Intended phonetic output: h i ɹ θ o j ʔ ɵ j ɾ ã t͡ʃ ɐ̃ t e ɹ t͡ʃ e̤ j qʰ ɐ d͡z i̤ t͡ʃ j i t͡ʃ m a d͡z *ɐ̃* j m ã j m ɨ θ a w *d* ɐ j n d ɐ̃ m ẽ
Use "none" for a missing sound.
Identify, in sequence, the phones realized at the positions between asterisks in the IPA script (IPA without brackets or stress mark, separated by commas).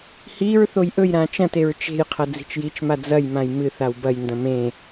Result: ɐ, b